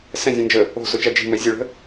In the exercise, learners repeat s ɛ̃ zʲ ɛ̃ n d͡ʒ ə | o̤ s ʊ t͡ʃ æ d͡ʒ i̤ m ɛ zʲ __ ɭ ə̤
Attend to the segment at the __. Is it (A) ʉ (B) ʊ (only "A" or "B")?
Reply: B